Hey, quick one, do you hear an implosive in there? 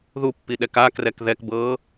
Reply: yes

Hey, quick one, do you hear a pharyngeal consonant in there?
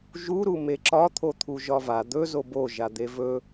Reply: no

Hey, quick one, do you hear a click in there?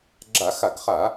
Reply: yes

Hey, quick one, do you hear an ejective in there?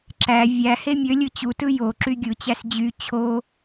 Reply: no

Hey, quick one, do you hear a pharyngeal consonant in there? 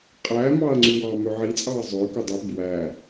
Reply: yes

